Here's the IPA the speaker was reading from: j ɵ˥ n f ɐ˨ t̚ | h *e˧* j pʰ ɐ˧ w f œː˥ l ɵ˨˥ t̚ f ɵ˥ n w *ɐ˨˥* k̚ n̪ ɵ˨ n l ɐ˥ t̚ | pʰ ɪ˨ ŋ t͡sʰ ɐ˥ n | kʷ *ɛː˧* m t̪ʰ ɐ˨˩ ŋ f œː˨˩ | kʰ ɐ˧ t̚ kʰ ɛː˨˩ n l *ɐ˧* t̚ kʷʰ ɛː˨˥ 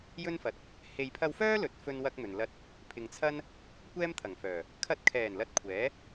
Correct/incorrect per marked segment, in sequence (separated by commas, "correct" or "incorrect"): incorrect, incorrect, incorrect, incorrect